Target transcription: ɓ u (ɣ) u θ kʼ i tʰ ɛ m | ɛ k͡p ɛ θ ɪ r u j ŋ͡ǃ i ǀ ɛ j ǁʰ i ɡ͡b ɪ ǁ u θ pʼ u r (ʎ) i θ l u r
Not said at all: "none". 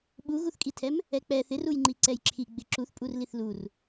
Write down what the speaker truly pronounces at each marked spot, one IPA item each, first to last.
ɣ, l

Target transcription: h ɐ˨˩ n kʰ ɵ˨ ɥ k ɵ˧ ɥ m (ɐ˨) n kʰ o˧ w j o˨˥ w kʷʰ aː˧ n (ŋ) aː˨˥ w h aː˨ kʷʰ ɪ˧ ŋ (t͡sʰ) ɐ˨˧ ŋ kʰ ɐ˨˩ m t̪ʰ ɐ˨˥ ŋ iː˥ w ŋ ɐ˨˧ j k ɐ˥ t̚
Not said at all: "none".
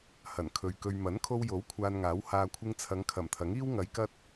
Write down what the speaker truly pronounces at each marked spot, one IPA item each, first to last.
ɐ˨˥, ŋ, t͡sʰ

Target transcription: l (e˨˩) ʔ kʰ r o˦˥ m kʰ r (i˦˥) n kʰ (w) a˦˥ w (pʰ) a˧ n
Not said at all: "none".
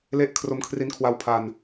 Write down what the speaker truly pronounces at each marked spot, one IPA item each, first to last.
e˦˥, i˦˥, w, pʰ

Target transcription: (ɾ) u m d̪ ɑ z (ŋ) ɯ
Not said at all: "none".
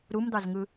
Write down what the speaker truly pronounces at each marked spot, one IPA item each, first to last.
ɾ, ŋ

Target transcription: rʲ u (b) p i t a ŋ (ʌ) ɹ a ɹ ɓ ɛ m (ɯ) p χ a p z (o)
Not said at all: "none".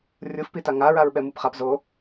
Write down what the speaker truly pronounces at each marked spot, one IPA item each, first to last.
f, a, ɯ, o

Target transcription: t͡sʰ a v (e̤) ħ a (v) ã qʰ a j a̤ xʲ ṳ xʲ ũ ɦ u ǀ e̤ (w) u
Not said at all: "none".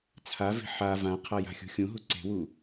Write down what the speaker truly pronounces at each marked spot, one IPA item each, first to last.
e̤, v, w

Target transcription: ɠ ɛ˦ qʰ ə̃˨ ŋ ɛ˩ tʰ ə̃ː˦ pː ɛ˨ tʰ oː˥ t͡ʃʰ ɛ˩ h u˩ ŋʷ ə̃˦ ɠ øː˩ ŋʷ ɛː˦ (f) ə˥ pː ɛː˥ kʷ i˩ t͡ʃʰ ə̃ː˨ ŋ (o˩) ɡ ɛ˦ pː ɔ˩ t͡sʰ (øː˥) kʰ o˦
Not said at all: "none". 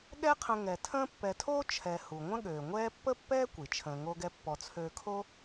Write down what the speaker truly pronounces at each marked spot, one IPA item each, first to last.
pː, o˦, øː˨

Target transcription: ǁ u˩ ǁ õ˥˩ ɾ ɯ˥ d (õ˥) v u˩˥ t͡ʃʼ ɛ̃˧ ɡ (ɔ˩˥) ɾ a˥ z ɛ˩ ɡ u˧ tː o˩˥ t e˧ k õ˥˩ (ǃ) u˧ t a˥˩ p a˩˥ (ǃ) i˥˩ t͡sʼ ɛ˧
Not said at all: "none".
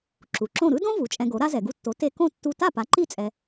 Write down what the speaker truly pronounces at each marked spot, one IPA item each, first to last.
õ˥, o˩˥, tː, ǃ

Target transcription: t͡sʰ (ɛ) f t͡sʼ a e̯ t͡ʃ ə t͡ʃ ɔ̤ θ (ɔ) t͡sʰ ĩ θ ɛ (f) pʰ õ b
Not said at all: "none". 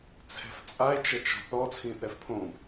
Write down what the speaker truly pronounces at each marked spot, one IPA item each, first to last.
ɛ̤, ɔ, f

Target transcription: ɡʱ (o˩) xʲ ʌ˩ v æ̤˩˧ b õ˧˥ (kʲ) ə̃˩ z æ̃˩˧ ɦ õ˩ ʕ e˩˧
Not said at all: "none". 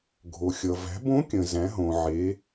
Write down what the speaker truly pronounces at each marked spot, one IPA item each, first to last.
o˩, kʲ

